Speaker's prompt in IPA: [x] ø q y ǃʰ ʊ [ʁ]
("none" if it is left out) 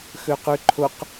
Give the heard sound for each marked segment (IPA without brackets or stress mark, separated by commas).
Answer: x, q